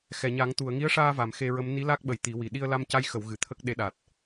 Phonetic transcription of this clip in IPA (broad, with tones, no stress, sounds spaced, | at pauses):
x ɛ˨˩˨ ɲ a˨˩˦ ŋ t̪ u˨˩˨ ə̯ ŋ i˧˥ ə̯ ʂ aː˧ v a˨˩˨ m x e˧ ɹ ə˧˥ m n i˧˥ l a˦˥ k̚ ɓ ə˨˩ j t̪ i˨˩˦ w i˨˩ ɗ i˧ ə̯ l a˧ m c a˧˥ j x ə˨˩˨ w ɣ ɨ˨˩˨ t̪ʰ ə˦˥ k̚ ɗ e˧˥ ɗ a˨˩ t̚